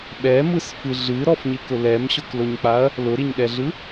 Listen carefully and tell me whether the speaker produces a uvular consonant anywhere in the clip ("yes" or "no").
no